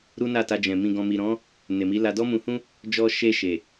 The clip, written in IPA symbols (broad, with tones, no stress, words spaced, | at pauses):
ɾu˦na˦˨ta˧d͡ʒɛ̃˨ mĩ˨ɡɔ̃˨mi˨ɾɔ̃˨˦ | ne˨mi˨˦la˧ dɔ˦mũ˧hũ˦ | d͡ʒɔ˧ʃe˧ ʃe˨